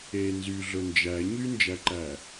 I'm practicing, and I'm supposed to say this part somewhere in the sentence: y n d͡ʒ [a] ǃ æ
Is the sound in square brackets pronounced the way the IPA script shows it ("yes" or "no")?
no